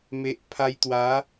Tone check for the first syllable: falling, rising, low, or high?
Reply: low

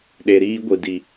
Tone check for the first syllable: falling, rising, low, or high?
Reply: low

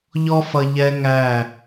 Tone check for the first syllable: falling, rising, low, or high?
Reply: high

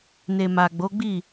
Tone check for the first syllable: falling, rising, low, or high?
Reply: low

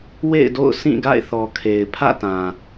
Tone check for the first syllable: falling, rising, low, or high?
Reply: falling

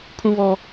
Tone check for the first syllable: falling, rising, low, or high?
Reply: high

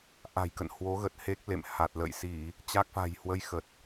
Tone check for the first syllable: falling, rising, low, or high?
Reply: low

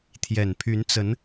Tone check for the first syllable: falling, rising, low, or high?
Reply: low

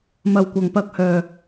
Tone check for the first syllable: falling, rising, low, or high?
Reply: low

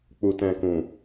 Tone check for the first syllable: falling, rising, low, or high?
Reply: low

